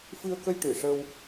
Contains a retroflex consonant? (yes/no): yes